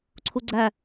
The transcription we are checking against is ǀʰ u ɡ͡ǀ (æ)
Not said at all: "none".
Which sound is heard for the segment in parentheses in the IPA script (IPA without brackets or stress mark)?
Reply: æ